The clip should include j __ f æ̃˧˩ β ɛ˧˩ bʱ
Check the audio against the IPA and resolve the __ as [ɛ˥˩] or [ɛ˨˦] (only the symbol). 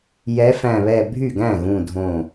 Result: ɛ˨˦